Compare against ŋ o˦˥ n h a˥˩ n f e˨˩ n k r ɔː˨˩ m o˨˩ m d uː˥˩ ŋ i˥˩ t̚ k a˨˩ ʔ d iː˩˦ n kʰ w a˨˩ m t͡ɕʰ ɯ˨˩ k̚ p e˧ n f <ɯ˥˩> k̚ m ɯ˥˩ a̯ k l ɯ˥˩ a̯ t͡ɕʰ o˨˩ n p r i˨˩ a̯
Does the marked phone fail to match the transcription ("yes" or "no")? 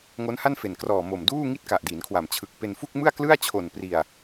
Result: yes